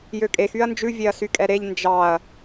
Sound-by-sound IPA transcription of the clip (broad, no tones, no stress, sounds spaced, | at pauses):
j ø kʼ e x y ɐ̯ n d͡ʒ ʉ vʲ e ɐ̯ s y kʼ ɛ ɾ e ʎ n d͡ʒ ɑ ɐ̯